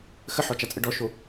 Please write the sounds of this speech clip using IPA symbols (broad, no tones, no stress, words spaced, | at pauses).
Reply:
xəħɔt͡ʃat͡sʼə ɖɔʃo